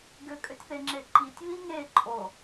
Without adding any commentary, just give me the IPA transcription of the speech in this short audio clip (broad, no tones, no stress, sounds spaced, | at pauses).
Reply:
ɡ ʏ kʼ ʏ tʲ θ e ŋ͡ǁ e ǃ i tʲ β i ŋ e ǃʼ o